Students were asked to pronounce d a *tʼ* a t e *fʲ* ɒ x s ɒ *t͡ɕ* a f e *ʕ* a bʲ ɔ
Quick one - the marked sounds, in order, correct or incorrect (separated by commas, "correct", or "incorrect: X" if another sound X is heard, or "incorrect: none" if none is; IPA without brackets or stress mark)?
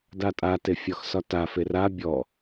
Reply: correct, correct, incorrect: t, incorrect: r